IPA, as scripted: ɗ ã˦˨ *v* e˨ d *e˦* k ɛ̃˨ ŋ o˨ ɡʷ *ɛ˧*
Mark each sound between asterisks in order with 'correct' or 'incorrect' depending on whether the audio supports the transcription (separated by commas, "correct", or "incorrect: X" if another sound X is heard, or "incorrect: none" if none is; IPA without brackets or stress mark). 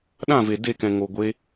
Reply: correct, incorrect: e˦˨, incorrect: e˧